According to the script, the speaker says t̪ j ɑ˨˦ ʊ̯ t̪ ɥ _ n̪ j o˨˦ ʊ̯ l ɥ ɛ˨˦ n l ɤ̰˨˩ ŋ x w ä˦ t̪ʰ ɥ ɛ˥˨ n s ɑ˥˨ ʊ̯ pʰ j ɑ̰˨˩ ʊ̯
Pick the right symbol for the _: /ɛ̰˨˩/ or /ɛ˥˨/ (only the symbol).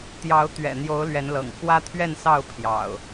ɛ̰˨˩